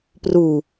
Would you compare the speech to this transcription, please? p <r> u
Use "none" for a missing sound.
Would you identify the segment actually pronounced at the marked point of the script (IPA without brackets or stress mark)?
r